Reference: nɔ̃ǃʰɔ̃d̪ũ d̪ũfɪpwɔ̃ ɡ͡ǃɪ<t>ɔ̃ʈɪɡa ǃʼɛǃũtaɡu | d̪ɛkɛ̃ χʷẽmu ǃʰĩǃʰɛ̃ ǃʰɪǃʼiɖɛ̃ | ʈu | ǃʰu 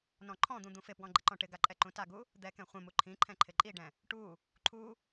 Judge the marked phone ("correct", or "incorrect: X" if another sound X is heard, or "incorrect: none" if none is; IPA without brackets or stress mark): incorrect: ǃ